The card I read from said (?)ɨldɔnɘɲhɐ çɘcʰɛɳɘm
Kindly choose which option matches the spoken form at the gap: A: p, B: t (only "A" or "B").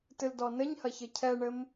B